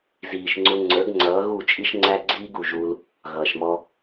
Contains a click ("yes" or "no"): yes